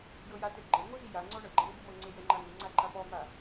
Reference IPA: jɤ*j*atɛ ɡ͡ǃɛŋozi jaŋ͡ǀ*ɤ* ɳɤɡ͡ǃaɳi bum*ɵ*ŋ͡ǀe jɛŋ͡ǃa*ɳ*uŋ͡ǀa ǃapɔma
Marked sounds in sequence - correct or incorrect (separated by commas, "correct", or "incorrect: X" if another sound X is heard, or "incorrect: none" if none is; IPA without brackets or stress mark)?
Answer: correct, incorrect: ɔ, incorrect: ɤ, incorrect: ŋ